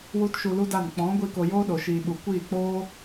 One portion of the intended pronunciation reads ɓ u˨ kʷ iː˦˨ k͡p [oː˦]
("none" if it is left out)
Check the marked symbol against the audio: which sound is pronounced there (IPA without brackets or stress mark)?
oː˦